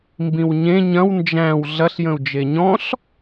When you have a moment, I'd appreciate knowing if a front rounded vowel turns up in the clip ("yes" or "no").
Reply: no